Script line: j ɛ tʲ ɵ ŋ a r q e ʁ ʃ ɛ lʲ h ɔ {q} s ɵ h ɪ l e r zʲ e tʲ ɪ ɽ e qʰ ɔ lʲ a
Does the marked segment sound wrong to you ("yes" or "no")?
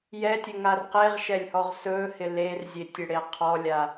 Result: yes